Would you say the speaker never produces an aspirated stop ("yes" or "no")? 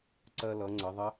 yes